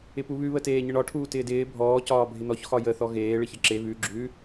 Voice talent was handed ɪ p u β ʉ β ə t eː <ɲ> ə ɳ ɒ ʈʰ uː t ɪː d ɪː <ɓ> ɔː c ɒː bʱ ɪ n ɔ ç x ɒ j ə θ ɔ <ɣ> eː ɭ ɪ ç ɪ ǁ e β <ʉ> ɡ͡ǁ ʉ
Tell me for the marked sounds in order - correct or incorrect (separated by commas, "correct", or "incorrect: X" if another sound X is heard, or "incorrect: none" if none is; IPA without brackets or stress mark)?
correct, incorrect: bʱ, correct, correct